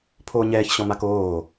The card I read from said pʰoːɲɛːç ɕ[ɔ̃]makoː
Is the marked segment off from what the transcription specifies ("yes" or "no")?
no